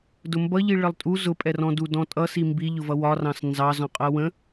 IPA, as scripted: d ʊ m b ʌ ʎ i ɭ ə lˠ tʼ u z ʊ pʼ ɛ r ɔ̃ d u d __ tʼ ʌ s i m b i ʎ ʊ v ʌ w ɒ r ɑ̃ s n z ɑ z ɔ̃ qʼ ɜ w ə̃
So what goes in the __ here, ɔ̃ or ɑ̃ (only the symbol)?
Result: ɔ̃